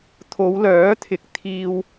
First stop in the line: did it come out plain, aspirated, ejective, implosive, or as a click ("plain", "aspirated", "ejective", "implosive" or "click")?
aspirated